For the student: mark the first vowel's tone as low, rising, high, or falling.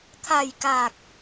low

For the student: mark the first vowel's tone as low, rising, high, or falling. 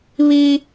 high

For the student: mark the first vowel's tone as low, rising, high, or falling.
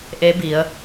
rising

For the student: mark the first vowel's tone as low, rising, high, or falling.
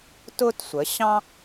high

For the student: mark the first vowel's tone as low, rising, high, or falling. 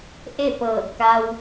falling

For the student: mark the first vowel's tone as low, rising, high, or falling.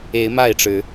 rising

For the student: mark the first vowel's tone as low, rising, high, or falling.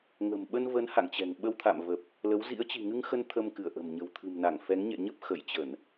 low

